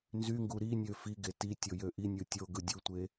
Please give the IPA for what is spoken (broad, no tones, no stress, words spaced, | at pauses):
nzyŋɡu ɾinʲø fiɡe ti tʲojøʔinʲɯ tʲo ɡɯdʲutʷe